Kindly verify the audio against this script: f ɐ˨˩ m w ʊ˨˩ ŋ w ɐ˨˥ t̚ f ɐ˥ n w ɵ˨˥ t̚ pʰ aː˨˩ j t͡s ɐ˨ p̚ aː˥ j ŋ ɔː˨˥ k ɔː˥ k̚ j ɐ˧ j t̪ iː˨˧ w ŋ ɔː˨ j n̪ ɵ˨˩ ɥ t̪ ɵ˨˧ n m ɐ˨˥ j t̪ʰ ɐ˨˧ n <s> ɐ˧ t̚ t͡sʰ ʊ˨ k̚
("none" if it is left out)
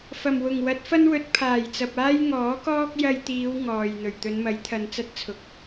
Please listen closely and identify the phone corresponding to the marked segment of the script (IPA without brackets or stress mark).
t͡s